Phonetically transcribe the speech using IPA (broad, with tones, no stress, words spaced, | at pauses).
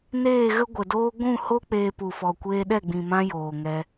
neː˦˨ɣə˦ɡʷə˨doː˦ ɡʷũ˦˨ho˦ k͡peː˧pu˨fɔ˨ kʷeː˧ɗɛ˦˨ɡ͡bĩ˨ mã˦joː˨ŋɛ˧